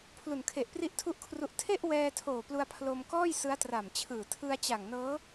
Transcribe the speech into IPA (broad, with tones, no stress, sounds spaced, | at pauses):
pʰ l u˨˩ n kʰ e˨˩ ʔ p r i˦˥ ʔ tʰ u˥˩ ʔ kʰ r u˦˥ ʔ tʰ e˥˩ ʔ w ɛː˧ tʰ oː˨˩ p l u˧ a̯ pʰ l o˧ m k ɔː˥˩ j s ɯ˦˥ a̯ t r a˨˩ m t͡ɕʰ ɯː˨˩ tʰ ɯ˧ a̯ t͡ɕ a˨˩ ŋ n ɤː˦˥